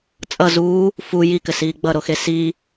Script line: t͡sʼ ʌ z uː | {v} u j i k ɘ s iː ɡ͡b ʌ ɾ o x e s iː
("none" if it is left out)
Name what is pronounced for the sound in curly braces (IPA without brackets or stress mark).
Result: f